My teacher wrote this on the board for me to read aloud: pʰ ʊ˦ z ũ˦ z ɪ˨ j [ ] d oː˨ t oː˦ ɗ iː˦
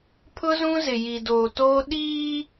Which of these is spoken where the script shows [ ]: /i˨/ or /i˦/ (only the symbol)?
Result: i˨